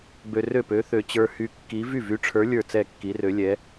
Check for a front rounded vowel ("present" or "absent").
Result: present